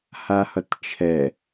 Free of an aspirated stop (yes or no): no